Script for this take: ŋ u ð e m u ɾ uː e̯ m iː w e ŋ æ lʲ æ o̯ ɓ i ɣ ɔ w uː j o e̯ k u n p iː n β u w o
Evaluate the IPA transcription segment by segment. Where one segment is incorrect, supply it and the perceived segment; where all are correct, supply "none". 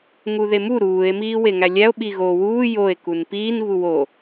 ɔ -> o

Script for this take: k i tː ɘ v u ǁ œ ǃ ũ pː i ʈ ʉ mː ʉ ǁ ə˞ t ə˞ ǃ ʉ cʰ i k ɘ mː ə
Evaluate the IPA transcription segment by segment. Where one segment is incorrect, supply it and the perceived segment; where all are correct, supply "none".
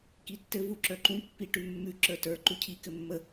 none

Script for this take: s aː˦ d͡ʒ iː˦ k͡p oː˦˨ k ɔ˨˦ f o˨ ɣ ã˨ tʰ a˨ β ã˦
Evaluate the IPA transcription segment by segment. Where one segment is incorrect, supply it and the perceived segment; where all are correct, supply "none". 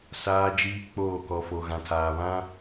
a˨ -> aː˨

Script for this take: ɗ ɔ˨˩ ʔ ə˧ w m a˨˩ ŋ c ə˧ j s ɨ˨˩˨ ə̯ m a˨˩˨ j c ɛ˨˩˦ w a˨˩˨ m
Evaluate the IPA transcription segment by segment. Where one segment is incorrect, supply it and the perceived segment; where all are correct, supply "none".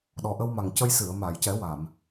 none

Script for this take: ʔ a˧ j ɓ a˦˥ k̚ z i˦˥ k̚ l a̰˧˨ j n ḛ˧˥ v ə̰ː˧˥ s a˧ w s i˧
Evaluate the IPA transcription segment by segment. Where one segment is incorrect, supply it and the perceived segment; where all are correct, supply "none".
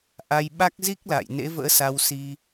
none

